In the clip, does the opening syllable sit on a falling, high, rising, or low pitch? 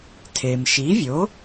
low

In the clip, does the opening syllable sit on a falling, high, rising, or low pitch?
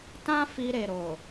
high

